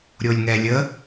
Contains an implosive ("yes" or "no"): no